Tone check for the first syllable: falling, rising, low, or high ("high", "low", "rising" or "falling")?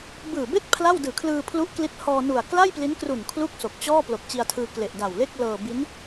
low